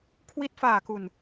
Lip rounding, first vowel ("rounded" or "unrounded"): unrounded